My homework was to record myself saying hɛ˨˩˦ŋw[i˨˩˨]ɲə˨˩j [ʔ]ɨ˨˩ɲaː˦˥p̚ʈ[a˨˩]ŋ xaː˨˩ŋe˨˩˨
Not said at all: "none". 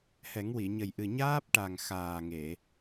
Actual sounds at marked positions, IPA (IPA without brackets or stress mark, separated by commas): i˨˩˨, ʔ, a˨˩